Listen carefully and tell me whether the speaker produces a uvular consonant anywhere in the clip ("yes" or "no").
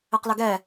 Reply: yes